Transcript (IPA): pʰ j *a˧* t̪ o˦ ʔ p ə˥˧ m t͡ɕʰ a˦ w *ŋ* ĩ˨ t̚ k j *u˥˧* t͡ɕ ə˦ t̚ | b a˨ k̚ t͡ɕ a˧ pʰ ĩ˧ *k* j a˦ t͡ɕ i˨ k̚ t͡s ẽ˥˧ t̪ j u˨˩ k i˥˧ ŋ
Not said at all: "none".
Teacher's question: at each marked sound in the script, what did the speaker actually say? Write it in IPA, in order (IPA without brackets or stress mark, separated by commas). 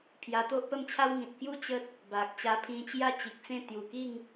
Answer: a˧, ŋ, u˥˧, t͡ɕ